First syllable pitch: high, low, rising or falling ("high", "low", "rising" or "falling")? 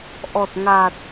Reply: low